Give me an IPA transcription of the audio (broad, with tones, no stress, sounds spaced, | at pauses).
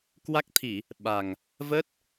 k w a˦˥ k̚ t̪ʰ i˧˩˨ | ɓ a˨˩ ŋ | v ə˦˥ t̚